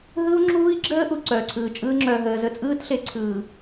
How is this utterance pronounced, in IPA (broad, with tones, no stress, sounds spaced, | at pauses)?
ɦ ɯ˦ u̯ ŋ͡ǁ uː˦ i̯ ɡ͡ǁ əː˦ ʔ u˨ ǀ œː˨ ǀʰ ɯː˨ t͡ʃʼ ɯː˦ ŋ͡ǁ œː˨ ɦ əː˨ z ə˦ t͡sʼ ɯː˦ t ɬ e˨ ǀʰ ɯː˨